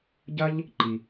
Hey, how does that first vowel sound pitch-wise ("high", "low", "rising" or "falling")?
high